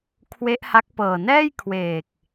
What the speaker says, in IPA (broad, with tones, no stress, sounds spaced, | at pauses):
kʰ w e˦˥ ʔ h a˦˥ k̚ p ɤː˨˩ n ɛː˥˩ j kʰ w eː˨˩ k̚